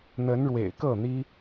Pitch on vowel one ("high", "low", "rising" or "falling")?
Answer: rising